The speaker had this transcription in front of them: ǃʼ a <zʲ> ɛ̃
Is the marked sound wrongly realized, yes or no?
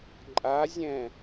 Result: no